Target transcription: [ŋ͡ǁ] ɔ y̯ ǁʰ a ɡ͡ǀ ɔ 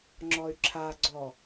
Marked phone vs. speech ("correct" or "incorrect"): correct